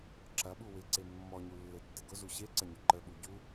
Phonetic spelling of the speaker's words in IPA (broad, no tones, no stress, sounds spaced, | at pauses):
ǁ ɐ ɓ u w ɪ ǀ e mː ɔ ɲ u lː e tː ɪ ɡ ʊ z u ɕ e ǀ ɐ ɲ ʊ ǃ ə ɓ u ɟ u